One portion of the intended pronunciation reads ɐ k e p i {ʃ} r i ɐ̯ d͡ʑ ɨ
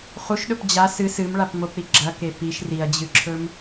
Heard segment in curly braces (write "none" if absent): ʃ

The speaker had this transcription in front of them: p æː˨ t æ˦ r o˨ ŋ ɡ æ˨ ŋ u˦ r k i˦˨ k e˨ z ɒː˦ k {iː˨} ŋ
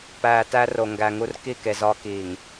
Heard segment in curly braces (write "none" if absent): iː˨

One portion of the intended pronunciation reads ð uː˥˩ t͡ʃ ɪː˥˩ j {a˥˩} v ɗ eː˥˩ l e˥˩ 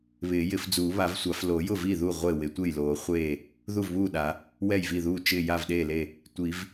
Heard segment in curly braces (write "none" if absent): a˥˩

